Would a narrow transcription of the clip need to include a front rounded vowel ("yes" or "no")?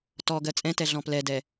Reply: no